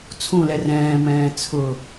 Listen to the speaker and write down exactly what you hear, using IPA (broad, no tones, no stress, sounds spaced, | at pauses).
t͡sʰ ũ l ɛ r ɛ̃ː m ɛ̃ː t͡sʰ ʊ